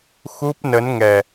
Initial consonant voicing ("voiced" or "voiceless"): voiceless